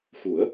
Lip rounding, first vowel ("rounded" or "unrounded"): rounded